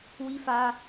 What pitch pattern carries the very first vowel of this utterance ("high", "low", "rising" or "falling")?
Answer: high